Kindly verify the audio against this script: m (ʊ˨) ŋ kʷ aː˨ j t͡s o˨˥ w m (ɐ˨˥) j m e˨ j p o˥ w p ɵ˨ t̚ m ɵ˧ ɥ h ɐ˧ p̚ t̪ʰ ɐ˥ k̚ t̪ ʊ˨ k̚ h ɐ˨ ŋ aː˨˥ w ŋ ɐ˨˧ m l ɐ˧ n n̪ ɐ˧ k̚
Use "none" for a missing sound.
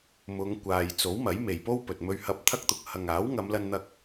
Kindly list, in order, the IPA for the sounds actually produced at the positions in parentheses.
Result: ʊ˨˧, ɐ˨˥

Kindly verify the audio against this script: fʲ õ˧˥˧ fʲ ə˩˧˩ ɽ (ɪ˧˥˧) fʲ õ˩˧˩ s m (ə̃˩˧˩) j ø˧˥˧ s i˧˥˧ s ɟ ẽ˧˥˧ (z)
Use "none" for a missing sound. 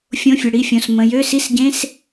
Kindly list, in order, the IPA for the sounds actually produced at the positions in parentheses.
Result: i˧˥˧, ə̃˩˧˩, s

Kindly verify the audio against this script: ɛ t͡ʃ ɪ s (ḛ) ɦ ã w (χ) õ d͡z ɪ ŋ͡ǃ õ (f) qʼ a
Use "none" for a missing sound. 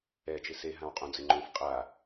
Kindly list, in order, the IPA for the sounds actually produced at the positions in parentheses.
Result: e, qʼ, f

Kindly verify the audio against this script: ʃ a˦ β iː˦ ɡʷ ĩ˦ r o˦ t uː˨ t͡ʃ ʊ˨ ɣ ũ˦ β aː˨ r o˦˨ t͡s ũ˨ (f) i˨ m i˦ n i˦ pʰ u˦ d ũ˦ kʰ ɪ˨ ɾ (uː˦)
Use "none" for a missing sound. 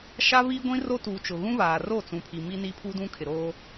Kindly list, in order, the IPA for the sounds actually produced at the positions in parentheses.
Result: pʰ, oː˦

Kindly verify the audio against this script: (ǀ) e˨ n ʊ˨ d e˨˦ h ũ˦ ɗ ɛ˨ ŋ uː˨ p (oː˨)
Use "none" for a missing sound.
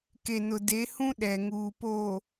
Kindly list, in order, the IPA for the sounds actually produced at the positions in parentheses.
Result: k, oː˨

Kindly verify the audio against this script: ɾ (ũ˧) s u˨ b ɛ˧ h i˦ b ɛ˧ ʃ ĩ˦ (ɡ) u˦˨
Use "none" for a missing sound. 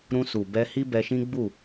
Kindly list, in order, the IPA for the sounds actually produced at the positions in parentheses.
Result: ũ˧, ɡ͡b

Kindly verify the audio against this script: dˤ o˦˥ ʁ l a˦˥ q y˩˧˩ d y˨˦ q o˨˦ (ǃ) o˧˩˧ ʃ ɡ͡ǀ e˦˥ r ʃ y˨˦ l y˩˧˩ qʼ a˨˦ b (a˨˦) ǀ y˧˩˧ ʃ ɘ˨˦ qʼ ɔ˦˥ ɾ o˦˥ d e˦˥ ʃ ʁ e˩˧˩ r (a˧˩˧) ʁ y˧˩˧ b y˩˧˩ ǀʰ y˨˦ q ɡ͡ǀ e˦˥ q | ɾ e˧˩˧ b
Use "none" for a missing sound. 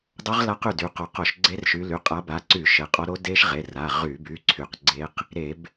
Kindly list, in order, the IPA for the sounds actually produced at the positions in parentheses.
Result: q, a˨˦, a˩˧˩

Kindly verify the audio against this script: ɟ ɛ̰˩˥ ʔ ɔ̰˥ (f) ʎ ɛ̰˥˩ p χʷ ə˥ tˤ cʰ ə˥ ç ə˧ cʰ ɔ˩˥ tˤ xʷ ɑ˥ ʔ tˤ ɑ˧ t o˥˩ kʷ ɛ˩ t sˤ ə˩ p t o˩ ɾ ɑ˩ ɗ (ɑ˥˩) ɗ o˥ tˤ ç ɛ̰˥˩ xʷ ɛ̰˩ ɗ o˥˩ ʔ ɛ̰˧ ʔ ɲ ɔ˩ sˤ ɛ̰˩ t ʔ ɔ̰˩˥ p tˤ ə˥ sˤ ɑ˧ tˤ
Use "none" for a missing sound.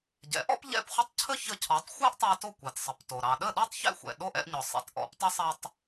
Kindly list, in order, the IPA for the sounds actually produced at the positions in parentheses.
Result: p, ə˥˩

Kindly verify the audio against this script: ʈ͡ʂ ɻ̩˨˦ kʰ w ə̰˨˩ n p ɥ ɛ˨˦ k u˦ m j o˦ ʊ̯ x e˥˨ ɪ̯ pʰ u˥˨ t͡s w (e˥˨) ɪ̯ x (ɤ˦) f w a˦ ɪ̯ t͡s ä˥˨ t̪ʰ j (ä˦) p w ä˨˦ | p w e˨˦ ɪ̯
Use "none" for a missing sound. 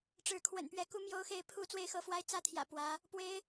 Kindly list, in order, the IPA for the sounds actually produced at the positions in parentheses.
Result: e˥˨, ɤ˦, ä̰˨˩

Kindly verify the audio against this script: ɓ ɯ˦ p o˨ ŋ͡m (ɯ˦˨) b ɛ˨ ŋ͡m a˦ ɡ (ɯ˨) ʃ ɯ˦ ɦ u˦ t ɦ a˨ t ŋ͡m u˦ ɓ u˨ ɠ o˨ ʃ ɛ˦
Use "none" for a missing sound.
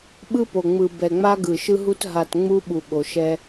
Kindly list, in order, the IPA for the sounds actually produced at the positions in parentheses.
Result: ɯ˨, ɯ˨

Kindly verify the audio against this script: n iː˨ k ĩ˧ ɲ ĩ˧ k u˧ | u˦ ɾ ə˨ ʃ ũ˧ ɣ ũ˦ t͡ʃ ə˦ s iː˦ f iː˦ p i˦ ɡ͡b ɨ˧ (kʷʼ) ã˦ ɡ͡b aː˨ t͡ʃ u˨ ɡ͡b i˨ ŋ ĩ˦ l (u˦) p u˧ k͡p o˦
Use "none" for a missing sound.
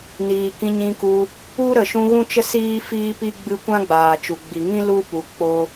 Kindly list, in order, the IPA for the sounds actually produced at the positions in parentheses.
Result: kʷ, u˦

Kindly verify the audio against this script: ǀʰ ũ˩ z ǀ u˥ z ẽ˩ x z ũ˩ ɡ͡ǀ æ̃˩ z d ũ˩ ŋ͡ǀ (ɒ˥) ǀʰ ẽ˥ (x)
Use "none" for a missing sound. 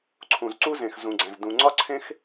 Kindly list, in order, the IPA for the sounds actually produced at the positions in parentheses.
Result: ɒ˥, x

